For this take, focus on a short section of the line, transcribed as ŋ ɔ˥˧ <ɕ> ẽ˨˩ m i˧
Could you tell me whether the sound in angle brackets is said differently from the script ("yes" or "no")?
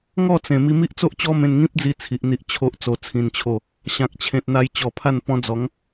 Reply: yes